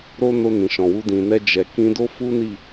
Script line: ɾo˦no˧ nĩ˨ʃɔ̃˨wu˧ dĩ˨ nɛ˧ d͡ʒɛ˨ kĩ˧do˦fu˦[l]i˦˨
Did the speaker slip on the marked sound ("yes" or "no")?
yes